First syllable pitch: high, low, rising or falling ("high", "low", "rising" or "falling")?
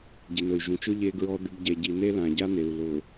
low